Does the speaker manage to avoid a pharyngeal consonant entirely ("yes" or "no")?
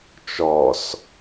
yes